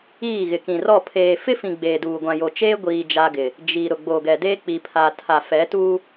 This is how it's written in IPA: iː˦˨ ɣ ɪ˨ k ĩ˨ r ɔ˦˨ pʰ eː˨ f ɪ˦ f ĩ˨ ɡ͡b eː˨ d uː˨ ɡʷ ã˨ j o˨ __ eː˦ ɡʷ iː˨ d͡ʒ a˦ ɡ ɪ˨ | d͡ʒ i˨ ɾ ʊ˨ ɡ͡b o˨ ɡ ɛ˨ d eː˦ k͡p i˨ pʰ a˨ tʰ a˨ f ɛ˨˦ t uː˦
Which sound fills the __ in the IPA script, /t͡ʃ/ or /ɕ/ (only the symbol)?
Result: t͡ʃ